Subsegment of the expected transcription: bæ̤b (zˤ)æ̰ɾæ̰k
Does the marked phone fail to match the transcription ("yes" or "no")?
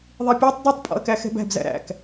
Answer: yes